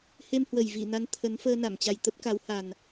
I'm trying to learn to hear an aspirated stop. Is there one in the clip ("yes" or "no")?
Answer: yes